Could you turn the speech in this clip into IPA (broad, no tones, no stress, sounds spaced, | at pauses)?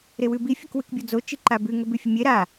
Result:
ɾ e w ʉ b i fʲ ɐ k w ʉ k bʲ o d͡z o t͡ʃ i ǃ a b ʉ ŋ ɵ b ʉ fʲ ɵ mʲ e ɾ a